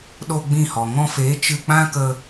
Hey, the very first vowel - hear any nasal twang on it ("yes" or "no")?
no